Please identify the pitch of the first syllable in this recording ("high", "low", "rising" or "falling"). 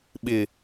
low